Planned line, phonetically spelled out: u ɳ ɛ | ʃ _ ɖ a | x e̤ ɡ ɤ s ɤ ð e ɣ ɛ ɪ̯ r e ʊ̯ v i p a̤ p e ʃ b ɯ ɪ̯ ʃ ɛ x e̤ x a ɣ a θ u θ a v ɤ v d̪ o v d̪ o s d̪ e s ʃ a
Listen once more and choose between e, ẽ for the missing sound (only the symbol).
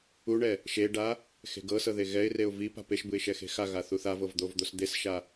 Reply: e